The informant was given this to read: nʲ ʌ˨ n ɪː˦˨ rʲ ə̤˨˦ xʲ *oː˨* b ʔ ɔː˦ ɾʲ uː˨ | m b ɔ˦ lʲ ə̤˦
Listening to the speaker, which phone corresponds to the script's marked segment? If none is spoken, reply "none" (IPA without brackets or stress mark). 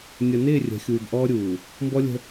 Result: uː˨